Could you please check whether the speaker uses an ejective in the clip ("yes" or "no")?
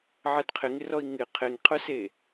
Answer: no